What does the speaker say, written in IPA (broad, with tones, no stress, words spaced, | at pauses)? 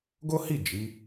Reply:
ɡo˦hi˦˨ d͡ʒi˨˦